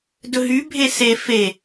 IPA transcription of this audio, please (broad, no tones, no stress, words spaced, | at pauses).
dɵɦy bʱese fe